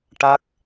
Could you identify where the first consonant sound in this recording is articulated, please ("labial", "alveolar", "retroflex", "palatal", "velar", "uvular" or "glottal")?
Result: retroflex